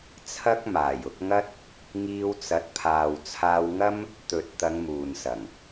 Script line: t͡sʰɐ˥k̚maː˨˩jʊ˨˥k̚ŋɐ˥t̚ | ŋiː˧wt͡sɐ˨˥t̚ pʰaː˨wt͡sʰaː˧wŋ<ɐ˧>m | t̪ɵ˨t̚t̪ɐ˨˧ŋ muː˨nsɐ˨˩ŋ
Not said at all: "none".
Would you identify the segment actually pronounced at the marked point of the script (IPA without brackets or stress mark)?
ɐ˥